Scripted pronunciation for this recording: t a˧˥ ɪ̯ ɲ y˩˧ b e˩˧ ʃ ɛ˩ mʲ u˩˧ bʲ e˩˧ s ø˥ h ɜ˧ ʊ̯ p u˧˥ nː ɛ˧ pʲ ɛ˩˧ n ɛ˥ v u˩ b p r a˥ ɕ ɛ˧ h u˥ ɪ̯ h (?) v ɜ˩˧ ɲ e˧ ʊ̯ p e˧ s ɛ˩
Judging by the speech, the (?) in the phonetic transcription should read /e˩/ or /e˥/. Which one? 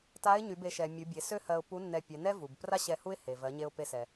e˩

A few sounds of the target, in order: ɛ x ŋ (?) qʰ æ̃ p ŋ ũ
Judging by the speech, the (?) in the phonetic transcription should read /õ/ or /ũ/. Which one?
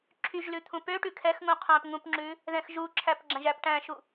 ũ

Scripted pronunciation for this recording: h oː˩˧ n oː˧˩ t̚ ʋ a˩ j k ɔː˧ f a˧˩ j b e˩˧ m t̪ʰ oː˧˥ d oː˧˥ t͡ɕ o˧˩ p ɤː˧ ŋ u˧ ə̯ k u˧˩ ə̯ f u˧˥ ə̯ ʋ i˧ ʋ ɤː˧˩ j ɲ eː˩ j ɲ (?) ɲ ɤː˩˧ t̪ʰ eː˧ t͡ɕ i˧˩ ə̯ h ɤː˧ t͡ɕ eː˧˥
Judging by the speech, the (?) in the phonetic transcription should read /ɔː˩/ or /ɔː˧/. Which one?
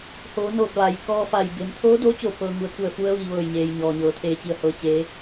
ɔː˩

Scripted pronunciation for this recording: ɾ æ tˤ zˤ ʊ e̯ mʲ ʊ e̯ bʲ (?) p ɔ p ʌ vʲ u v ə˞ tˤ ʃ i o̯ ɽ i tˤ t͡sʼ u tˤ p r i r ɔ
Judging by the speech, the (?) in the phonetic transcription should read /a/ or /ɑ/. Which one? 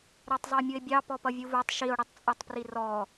ɑ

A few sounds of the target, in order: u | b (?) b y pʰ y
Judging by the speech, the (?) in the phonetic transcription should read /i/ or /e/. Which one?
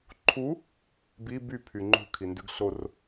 i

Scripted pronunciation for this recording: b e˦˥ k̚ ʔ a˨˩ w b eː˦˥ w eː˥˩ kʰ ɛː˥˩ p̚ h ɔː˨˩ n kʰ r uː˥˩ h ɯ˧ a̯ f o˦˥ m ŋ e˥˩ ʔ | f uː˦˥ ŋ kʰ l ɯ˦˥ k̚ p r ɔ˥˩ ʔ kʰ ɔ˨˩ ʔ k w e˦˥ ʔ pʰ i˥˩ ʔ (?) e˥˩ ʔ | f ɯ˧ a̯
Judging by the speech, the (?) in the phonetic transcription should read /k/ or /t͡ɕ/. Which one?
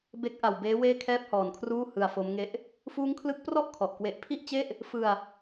t͡ɕ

